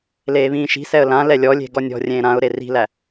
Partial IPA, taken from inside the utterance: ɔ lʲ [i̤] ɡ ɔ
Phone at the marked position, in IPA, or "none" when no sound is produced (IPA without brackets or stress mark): e̤